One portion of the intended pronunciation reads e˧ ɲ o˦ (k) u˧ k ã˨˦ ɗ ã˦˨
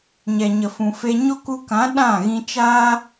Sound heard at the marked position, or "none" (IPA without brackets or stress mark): k